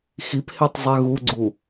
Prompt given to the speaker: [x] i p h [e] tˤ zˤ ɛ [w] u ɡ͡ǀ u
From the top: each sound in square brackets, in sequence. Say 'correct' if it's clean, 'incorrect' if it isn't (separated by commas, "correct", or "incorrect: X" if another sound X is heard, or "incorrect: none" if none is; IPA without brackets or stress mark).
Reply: correct, correct, incorrect: ɣ